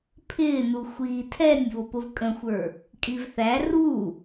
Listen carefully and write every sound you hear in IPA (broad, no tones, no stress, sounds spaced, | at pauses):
pʰ ɪː n u xʷ iː tʰ ɛ nʲ β ʊ p ʊ v kʼ ə̃ xʷ ə˞ | kʼ i v θ æ r u